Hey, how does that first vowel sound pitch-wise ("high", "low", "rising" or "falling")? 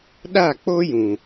falling